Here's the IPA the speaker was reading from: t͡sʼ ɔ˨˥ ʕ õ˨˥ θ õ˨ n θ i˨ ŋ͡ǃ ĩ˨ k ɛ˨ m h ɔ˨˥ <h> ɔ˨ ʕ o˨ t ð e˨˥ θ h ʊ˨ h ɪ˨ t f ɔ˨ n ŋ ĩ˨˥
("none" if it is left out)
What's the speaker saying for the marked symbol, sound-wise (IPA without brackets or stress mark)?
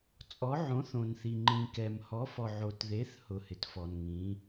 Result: f